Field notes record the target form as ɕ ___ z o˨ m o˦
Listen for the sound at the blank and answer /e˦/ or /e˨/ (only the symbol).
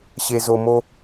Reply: e˨